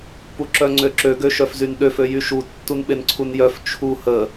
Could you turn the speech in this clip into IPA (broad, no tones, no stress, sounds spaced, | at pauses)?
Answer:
p u ǁ œ ŋ͡ǀ ø ǁ ø ɡ ø ʃ œ f z y n ɗ ø f ø j y ʃ u tː u n ɓ e n ǀʰ u n j œ f t͡ʃʰ u h ə